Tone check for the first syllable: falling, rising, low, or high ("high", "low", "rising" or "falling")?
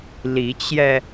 rising